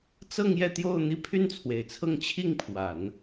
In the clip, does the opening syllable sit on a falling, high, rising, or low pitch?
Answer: falling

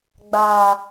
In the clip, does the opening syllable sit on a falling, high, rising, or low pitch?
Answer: low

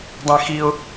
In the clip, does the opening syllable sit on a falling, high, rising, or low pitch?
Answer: high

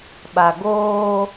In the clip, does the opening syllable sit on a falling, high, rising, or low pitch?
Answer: low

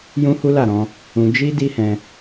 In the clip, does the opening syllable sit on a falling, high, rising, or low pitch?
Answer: high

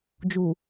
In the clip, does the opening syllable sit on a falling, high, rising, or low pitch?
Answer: low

